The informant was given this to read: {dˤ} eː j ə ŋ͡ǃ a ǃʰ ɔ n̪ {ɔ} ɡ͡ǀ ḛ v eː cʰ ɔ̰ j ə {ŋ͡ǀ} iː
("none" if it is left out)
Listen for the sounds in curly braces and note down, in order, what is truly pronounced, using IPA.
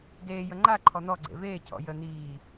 d, ɔ, n̪

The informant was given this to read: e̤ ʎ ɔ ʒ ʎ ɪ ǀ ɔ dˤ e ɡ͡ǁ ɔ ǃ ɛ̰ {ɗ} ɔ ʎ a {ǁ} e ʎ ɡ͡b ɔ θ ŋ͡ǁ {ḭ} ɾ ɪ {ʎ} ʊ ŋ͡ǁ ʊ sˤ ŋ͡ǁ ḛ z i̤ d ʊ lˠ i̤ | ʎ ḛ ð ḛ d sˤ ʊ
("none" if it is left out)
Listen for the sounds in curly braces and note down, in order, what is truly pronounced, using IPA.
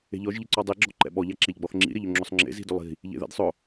ɓ, ǁ, ḭ, ʎ

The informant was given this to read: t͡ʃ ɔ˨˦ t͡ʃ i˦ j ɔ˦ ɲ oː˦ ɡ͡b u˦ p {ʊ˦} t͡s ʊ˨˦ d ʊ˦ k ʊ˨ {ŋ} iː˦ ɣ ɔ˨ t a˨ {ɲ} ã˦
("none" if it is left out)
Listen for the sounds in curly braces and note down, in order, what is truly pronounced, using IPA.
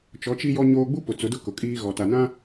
ʊ˨, kʼ, n

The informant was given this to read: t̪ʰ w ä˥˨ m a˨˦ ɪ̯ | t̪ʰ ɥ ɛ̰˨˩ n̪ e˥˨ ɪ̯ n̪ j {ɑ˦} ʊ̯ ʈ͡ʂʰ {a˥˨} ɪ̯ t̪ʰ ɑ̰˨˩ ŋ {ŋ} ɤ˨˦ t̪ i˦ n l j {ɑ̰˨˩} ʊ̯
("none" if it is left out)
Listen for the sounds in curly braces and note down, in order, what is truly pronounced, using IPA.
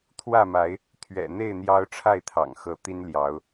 ɑ˦, a˥˨, x, ɑ˨˦

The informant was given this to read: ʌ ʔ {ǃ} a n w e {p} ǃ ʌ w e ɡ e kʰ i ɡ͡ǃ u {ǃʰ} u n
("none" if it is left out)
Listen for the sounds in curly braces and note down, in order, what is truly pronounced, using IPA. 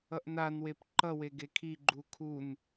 n, p, kʰ

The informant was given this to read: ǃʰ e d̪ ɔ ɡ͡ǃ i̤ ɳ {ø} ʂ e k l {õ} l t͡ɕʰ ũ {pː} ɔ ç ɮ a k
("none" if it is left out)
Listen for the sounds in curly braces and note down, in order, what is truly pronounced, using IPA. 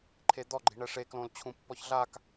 ɛ, õ, pː

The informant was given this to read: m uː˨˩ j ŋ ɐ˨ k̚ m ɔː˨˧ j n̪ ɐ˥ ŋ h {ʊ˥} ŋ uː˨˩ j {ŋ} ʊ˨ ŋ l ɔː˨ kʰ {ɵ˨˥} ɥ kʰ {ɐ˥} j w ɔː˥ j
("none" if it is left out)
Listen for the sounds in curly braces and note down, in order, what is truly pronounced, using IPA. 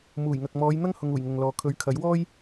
ʊ˨, ŋ, ɵ˨˥, ɐ˨˥

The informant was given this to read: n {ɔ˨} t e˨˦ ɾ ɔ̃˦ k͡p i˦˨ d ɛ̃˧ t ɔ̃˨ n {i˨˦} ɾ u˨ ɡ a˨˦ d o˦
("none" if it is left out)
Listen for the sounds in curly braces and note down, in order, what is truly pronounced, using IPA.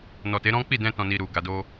ɔ˨, i˨

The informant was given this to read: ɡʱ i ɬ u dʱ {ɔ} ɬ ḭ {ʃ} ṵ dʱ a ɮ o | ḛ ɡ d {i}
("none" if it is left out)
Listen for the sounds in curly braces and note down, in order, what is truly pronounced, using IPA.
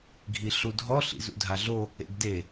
ɔ, z, e

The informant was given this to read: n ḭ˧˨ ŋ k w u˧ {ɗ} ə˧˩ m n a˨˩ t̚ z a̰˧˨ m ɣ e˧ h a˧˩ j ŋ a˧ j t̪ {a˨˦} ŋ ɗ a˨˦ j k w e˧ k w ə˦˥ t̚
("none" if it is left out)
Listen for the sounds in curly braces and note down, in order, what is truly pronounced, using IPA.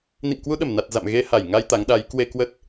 ɗ, a˨˦

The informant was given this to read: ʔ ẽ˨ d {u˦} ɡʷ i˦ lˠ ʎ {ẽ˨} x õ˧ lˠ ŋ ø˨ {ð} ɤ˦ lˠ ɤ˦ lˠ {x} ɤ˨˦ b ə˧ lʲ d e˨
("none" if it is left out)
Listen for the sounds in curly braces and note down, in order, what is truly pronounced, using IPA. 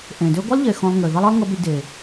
ø˦, e˨, ð, ŋ

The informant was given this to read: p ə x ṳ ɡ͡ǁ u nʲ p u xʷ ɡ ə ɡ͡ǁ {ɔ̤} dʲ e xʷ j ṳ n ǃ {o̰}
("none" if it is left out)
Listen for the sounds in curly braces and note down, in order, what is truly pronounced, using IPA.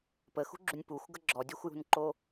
ɔ, o

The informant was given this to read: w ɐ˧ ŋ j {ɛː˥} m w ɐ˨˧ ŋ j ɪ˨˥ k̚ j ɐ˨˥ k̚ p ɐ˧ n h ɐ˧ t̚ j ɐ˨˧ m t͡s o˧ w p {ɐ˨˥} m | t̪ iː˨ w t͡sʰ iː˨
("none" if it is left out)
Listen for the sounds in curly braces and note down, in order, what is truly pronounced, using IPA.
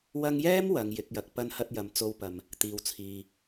ɛː˥, ɐ˨

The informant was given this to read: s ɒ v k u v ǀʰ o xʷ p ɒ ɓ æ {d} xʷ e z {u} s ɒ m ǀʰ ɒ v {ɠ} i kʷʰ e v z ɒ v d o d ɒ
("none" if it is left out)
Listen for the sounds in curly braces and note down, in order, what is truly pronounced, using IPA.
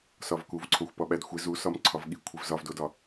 d, u, ɠ

